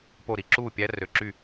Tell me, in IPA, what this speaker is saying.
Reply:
po˥˩ ɾi˨ǁuː˥˩ pʲæ˦˥rø˨ǁy˥˩

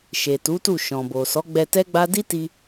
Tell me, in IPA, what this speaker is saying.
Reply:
ʃe˨tu˨˦tu˦˨ ʃɔ̃˨bo˨ sɔ˨˦ɡ͡bɛ˧tɛ˦ɡ͡ba˦ di˦ti˧

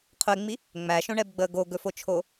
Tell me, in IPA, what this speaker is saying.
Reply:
qʰɵɪ̯ŋ͡mi | ŋ͡mæʃõɳɛbɡ͡bəː ɡoɡɵfot͡ʃʰo

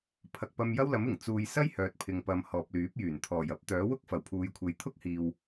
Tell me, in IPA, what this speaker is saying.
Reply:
pʰɐ˨k̚pɐ˧mjɐ˥wlɐ˨˥m ɪ˨˩ŋ t͡suː˨j sɐ˥j hœː˨t̚pʰɪ˨ŋpɐ˨m hɔː˨p̚lyː˨˥p̚jyː˨˩n t̪ʰɔː˨˩jɐ˥p̚ t̪œː˨˥ wʊ˥k̚ fɐ˨˩wpʰuː˨˧jkʷʰe˨˧j t̪ʰʊ˥k̚hiː˨w

